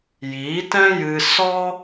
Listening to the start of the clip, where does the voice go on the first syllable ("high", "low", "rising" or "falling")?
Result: rising